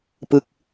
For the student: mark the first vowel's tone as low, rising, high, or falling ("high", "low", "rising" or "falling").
falling